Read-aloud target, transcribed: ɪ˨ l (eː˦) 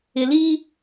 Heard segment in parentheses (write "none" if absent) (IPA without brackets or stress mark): iː˦